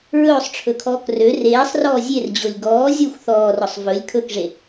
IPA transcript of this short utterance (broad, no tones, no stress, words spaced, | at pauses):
ɹɵːsˤʈ͡ʂʰɵkʰɔːk rø reːsˤrɔː zʲerd͡ʑolʲ ɡɔː zʲoxʷ θɔːrɔsˤ vɵlʲ kʰɵkʐe